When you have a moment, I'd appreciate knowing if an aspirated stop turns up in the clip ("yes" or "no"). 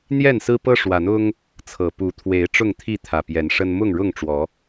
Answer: yes